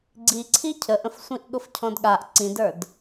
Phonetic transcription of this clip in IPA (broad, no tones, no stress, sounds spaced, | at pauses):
ɡ͡ǀ i ǀʰ i cʰ ə ʔ ə̃ f sʷ ĩ ʔ ɠ ʊ f cʰ ɔ̃ d ɠ a ʔ ǀ ĩ d ə˞ d